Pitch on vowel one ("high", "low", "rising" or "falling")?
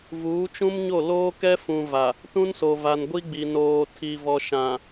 rising